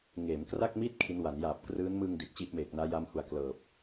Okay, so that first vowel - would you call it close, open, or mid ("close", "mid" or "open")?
mid